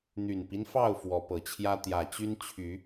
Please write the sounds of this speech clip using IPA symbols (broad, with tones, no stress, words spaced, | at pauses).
n̪y˨˩npi˦nfɑ˥˨ʊ̯ fwɔ˨˦pɤ˨˩t͡ɕʰjä˦ t̪jä˨˩ t͡ɕy˦nt͡ɕʰy˨˦